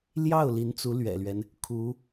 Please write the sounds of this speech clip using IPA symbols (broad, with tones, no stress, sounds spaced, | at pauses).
l j ɑ˥˩ ʊ̯ l i˧˥ n t͡s u˧˥ l ɥ ɛ̰˨˩ l ɥ ɛ˦ n | kʰ u˧˥